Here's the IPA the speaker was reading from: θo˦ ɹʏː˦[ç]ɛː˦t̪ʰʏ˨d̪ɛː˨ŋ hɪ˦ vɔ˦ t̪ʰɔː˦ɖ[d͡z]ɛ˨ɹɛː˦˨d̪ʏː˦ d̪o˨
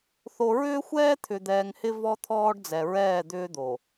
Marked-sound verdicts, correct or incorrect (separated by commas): incorrect, correct